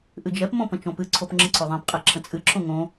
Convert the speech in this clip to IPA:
ʔ ɨ d͡ʒ ɛ p m õ p ə̃ t͡ʃ õ p ɨ ǀʰ o p ŋ͡ǁ ə̃ ǀʰ o ðˤ ɛ̃ p qʼ ɛ ǁʰ ə̃ t͡sʼ ɨ ǁʰ õ ŋ õ

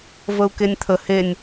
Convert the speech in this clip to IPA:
v ə u̯ k e nʲ t̪ʰ ə h e nʲ

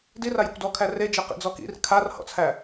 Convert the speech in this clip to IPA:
d i r a j ɔ̰ kʷ d ɔ kʰ æ r e d͡ʒ e q ḭ d͡z ɔ k ḭ r kʰ a r h ɔ̰ t͡sʰ æ

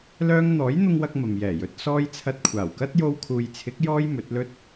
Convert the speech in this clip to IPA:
l œː˥ ŋ n̪ ɔː˨˥ j n̪ ʊ˧ ŋ w ɐ˧ k̚ m ɐ˨ m j ɛː˨˩ j ɵ˨˥ t̚ s ɔː˥ j t͡sʰ ɐ˧ t̚ kʷʰ aː˨˩ w k ɐ˥ t̚ j o˧ w kʰ uː˨ j t͡sʰ ɪ˨˥ k̚ j ɔː˥ j m ɵ˨˥ t̚ l ɵ˥ t̚

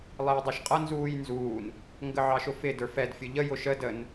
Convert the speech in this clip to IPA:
lˠ ɪː dˤ æ ʃ qʼ ʌ n z uː j n z uː n | ŋ ɡ ə ʕ ɑ ʃ ʊ f ɪ d ə˞ f ɛ d fʲ ʊ ʎ ə j ʊ ʃ ə d ə n

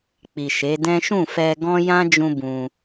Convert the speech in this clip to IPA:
k͡p i˨ ʃ e˨˦ d ɛ̃˦ ʃ ũ˦˨ f ɛ˧ ɡ ɔ̃˦ j ã˦ d͡ʒ ũ˧ b ũ˧

